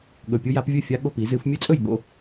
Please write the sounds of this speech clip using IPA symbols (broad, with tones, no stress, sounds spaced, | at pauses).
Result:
ɠ ɵ˨˩ pʲ u˦ j a˨˦ p vʲ ɵ˥˩ fʲ a˦ ɠ o˥˩ p i˨˩˦ z ɨ˨˩˦ f mʲ ɨ˦ t͡sʼ ɵ˥˩ j ɠ o̰˦